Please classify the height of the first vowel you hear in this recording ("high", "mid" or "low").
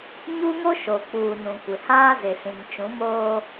high